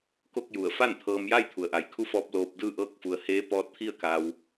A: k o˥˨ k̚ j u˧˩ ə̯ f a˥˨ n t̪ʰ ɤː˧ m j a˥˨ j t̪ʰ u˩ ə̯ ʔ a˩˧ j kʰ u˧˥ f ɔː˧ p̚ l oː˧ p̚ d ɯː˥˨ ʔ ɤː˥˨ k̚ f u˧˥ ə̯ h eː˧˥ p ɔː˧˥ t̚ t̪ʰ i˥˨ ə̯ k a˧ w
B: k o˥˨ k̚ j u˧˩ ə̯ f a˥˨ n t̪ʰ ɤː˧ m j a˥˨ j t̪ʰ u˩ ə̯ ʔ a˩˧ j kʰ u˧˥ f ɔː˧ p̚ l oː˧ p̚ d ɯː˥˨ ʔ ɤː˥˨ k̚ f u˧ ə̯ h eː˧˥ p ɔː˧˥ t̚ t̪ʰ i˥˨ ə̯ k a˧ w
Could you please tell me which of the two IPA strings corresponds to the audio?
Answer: B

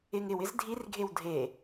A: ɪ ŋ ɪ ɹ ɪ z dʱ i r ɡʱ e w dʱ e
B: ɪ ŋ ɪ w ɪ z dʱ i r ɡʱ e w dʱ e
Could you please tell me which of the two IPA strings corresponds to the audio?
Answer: B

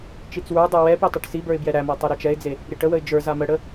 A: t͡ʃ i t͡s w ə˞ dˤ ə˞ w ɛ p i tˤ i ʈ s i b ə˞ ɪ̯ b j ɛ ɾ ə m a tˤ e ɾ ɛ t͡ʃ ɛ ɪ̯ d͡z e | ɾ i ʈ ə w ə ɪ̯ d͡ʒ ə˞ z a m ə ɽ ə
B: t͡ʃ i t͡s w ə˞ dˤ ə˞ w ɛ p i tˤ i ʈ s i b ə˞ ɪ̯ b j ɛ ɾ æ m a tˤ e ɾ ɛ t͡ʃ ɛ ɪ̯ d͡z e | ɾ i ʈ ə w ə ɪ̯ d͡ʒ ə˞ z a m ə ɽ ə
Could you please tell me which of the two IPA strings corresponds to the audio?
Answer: B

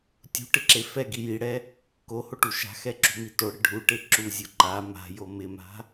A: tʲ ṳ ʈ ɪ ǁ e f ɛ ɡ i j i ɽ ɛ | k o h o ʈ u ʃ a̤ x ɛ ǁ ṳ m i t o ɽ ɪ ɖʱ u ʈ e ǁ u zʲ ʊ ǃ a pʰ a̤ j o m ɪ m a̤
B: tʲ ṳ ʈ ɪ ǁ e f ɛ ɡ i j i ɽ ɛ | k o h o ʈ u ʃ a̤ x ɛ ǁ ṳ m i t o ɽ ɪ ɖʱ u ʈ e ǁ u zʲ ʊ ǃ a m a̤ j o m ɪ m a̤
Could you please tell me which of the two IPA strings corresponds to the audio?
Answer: B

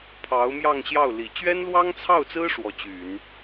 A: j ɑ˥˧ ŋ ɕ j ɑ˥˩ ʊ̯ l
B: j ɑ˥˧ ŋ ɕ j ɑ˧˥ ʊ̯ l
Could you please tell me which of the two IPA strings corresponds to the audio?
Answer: A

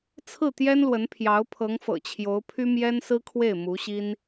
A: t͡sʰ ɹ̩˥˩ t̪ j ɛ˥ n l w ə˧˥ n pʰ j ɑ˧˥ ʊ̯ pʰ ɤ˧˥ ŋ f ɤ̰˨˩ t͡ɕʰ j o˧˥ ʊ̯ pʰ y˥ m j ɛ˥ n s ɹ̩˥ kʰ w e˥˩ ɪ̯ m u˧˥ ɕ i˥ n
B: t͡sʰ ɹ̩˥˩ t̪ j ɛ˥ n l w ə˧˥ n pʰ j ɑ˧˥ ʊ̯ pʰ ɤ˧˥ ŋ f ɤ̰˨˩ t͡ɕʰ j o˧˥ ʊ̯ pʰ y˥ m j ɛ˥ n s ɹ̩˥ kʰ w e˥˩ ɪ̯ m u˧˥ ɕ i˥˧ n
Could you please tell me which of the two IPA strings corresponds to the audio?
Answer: A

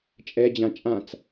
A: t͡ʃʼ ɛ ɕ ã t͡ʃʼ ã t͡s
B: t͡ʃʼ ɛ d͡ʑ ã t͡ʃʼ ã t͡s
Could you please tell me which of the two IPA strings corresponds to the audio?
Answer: B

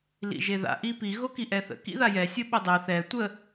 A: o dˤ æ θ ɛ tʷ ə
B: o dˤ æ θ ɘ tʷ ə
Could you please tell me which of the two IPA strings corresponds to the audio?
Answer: A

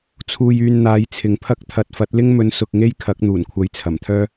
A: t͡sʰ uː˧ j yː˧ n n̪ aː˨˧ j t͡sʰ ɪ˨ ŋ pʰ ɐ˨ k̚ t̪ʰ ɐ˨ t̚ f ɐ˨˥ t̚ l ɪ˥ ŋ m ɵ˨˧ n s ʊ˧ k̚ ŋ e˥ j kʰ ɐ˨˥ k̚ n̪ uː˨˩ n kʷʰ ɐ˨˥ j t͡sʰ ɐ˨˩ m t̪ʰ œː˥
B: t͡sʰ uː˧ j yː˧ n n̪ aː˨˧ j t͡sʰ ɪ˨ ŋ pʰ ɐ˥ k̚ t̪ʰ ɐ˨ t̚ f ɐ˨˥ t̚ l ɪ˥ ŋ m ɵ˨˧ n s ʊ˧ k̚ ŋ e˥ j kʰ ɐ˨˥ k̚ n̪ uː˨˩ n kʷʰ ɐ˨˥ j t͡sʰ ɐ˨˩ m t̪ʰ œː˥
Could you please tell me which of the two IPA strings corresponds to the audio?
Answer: B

